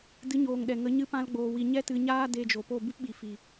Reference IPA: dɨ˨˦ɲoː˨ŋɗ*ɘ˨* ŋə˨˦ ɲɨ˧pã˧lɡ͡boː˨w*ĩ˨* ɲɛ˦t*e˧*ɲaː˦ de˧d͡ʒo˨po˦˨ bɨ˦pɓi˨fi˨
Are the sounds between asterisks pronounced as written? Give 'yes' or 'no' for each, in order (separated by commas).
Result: no, no, no